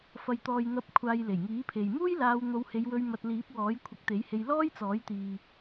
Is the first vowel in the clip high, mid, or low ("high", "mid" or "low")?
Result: low